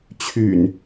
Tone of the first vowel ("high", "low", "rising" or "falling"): low